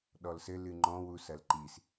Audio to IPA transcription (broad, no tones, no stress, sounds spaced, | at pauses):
ɗ ɔ l s ɘ l ɨ ŋ͡ǃ ɔ̃ w u s ɐ l ǃ i s